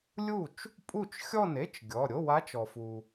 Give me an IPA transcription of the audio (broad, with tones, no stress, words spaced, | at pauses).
lʲu˥˩t͡ʃ | pʼu˥˩t͡ʃ xʲɔ˥˩ne˧˥˧t͡ʃ ɡʲɔ˩˧˩ ɾʲo˧˥˧wa˧˥t͡ʃɔ˩fu˩